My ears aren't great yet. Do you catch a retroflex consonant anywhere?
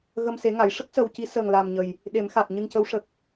yes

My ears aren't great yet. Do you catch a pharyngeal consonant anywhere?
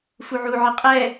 yes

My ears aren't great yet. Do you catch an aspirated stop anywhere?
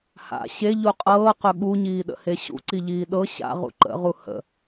no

